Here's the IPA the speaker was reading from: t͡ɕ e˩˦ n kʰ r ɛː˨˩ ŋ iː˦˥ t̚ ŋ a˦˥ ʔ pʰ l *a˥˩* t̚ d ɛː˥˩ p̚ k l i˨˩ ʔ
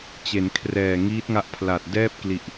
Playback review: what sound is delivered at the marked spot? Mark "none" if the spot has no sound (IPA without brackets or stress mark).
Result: a˨˩